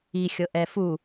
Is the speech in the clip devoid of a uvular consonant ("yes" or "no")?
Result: yes